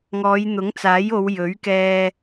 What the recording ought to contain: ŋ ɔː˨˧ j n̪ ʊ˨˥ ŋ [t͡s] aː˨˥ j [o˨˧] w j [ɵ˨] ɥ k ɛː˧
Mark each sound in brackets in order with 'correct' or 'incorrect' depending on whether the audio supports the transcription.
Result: correct, correct, incorrect

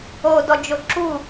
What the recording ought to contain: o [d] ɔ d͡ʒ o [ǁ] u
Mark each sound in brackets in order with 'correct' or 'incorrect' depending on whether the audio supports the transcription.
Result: correct, correct

